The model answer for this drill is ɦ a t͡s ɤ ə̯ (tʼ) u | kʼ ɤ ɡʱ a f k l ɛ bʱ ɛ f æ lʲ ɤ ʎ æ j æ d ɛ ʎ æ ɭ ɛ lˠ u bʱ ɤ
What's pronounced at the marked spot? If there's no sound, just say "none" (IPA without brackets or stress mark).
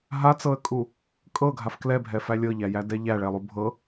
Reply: kʼ